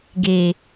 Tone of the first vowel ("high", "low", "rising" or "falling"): low